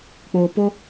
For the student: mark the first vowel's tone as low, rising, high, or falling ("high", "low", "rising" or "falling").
low